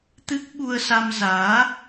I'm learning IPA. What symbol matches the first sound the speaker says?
t̪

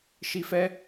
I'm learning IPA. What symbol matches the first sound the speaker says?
ʃ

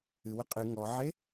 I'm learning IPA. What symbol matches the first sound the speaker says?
ɨ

